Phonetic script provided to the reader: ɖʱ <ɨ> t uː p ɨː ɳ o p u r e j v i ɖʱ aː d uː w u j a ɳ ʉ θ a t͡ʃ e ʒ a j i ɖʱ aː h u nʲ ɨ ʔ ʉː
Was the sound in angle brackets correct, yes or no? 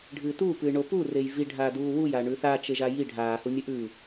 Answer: no